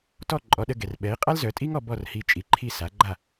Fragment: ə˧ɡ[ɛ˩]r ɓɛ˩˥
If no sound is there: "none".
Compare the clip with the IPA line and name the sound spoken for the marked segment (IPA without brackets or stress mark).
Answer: ɛ˩